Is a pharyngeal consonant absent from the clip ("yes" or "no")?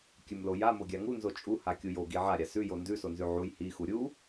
no